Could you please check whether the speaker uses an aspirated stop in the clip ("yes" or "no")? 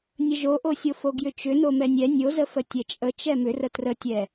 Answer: no